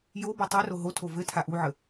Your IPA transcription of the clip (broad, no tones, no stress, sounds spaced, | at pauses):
j o b o tˤ ɛ r o ɦ o tʰ o v ɘ tʰ a ʔ u ʕ ə